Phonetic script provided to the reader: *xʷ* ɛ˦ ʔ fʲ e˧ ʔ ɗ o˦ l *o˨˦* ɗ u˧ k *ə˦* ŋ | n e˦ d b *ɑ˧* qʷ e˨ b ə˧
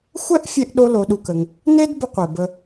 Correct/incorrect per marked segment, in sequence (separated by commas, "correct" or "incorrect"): correct, correct, incorrect, incorrect